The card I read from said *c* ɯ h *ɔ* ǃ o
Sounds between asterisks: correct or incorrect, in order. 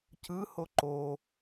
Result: correct, incorrect: o

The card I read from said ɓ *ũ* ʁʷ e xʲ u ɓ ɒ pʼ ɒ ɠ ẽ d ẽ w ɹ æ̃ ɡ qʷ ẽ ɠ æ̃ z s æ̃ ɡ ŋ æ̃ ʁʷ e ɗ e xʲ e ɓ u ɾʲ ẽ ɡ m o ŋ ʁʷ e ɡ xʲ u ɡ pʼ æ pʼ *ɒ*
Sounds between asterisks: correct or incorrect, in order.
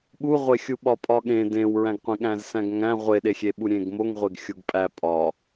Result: incorrect: u, correct

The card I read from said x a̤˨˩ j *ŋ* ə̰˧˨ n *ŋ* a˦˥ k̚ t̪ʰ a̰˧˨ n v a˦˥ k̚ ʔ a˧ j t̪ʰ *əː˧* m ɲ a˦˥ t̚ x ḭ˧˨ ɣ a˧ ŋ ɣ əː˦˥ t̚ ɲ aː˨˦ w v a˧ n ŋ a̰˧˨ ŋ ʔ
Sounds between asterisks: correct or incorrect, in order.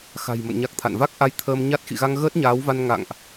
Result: incorrect: m, incorrect: ɲ, correct

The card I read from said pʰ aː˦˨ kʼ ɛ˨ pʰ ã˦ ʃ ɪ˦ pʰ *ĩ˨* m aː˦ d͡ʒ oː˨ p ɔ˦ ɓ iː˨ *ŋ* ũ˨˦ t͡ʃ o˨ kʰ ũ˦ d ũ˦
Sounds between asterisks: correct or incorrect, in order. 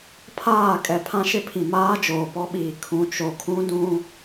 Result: correct, incorrect: kʰ

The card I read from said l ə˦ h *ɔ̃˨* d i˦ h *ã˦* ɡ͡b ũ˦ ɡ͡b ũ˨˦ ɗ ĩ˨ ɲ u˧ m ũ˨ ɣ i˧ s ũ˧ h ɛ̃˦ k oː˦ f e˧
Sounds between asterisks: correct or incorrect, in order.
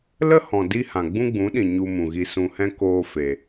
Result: correct, incorrect: ã˨

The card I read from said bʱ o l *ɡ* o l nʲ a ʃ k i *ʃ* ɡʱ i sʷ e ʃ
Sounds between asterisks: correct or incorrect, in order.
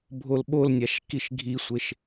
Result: incorrect: ɓ, correct

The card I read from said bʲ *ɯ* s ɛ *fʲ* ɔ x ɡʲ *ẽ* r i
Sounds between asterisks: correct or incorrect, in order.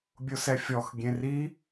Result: incorrect: ʊ, correct, correct

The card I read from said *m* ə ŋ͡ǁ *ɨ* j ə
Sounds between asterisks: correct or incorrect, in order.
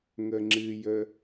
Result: incorrect: ŋ, correct

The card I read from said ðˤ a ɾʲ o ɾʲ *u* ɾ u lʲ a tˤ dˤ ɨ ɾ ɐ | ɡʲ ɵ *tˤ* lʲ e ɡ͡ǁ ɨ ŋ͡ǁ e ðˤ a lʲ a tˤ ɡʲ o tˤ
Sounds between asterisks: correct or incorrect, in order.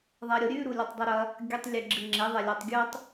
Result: incorrect: ʉ, correct

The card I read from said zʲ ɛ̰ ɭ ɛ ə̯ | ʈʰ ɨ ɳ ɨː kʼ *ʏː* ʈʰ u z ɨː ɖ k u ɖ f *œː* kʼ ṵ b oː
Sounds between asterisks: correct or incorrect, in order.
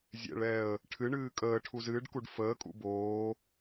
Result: incorrect: əː, incorrect: əː

